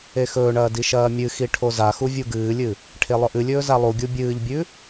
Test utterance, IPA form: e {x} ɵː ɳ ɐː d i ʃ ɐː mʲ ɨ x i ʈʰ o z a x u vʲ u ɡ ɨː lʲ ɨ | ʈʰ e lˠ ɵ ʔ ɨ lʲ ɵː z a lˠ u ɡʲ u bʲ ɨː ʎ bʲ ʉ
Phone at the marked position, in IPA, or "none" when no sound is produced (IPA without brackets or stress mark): x